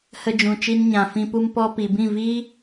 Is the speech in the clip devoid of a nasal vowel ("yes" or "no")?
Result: no